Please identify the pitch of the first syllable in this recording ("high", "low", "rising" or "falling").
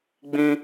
high